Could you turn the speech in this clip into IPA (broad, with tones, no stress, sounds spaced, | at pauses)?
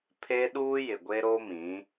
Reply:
pʰ e˦ ɗ uː˦ j ɪ˨ ɡʷ e˦ ɾ o˦ m ĩ˨˦